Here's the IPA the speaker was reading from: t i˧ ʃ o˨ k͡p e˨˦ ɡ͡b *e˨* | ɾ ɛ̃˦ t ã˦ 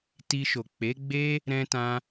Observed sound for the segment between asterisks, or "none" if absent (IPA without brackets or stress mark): e˦